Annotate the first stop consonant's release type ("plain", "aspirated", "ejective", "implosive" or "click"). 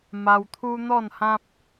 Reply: aspirated